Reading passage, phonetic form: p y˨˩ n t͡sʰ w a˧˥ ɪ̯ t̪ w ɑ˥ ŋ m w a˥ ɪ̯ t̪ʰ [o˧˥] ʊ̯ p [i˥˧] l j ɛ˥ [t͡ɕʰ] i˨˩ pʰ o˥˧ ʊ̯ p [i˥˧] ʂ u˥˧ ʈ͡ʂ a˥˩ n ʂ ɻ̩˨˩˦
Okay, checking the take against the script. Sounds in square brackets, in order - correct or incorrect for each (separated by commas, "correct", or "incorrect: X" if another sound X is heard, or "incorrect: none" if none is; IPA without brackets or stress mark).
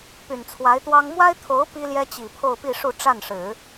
correct, incorrect: i˥, incorrect: t͡ɕ, correct